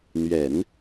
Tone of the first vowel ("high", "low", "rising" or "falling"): low